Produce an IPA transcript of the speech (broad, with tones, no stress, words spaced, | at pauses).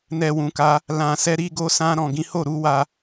nɛ˨wũ˨ka˨˦ | lã˨sɛ˧ ɾi˧ɡo˧ sã˧ɾɔ̃˨ ɡĩ˨˦ho˦˨ɾu˨˦wa˧